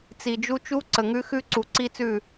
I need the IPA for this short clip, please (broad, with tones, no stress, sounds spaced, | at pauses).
t͡s i˨ d͡ʒ u˦ t͡ʃ u˦ ǀ ə˨ ŋ ʉ˦ x ʉ˦ ǀ u˨ ǀ i˦ t͡s ʉ˦˨